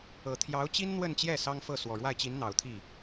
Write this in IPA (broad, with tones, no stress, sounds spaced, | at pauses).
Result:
ɤ˨˩ t̪ʰ j ɑ˧˥ ʊ̯ t͡ɕ i˥ n n̪ w ə˥˧ n t͡ɕ j ɛ˥˩ s ɑ˥ ŋ f ɤ˥˩ s w ɔ˨˩ ɻ w a˥˩ ɪ̯ t͡ɕ i˧˥ n n̪ ɑ˨˩ ʊ̯ t̪ʰ i˥˩